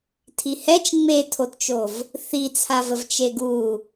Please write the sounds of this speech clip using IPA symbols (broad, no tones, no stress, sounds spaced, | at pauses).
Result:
tʰ i h ɛ t͡ʃ ŋ͡m e tʰ o t t͡ʃ o v | θ i t͡sʰ a v ə v t͡ʃ e ɡ u